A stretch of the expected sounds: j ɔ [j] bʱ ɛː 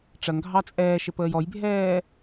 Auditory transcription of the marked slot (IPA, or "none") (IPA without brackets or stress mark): j